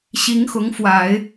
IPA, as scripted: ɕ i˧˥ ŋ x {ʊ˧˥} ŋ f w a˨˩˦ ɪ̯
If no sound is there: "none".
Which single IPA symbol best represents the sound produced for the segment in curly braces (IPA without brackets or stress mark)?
ʊ˧˥